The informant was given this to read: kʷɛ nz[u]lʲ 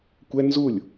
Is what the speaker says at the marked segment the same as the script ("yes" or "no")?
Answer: yes